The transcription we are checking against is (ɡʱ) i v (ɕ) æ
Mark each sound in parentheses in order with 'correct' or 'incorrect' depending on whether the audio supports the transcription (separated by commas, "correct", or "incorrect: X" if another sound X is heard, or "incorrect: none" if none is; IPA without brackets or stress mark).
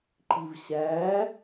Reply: incorrect: ǃ, correct